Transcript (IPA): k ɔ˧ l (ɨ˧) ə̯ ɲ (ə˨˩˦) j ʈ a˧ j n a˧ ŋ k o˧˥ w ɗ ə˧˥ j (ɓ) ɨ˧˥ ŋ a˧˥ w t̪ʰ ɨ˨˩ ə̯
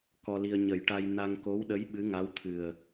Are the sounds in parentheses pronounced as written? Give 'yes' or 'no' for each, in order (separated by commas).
no, yes, yes